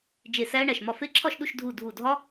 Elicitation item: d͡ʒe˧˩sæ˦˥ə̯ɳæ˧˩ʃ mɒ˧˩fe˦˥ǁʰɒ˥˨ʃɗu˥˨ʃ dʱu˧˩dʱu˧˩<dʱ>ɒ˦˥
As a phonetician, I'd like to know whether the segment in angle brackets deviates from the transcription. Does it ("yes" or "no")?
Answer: no